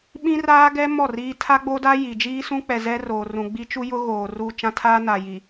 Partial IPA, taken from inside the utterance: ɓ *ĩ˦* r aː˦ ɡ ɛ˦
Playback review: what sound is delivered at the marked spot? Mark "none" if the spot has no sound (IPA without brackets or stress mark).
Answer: ĩ˦